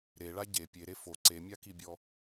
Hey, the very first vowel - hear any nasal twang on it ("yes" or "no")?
no